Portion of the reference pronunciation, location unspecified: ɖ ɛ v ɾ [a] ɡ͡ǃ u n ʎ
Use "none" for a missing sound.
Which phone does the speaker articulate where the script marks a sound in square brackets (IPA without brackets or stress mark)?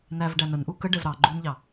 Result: ɑ